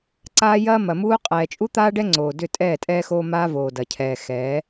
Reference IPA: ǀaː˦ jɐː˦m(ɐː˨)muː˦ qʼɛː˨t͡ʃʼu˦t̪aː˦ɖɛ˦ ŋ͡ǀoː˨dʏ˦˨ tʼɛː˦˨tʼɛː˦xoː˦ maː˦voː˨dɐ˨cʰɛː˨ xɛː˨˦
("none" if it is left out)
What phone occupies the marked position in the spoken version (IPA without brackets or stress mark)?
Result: ɐ˨